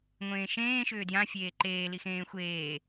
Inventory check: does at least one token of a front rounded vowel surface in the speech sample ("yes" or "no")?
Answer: yes